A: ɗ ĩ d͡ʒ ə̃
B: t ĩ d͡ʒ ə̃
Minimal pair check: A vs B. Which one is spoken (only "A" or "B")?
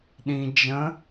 A